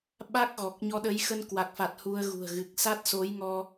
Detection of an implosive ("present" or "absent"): present